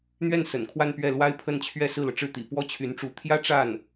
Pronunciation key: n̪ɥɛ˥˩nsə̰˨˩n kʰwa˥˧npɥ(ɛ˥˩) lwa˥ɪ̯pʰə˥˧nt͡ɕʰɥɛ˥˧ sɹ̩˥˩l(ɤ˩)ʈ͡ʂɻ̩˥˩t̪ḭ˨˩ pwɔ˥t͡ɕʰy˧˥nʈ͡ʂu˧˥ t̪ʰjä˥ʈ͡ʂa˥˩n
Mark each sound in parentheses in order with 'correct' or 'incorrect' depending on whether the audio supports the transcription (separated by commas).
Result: correct, correct